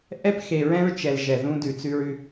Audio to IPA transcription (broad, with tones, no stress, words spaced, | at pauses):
ʔɛ˦p xe˨ɹɛ̃˦ɹ t͡ʃɛ˨l ʒɛ˨ ðũ˦ dʉ˨t͡sʉ˦ɹʉ˦